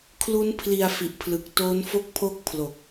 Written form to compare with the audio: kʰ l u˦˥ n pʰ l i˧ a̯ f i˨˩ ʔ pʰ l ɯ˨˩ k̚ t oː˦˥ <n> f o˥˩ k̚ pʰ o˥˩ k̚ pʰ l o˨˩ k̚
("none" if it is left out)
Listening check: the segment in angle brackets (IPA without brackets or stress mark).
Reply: n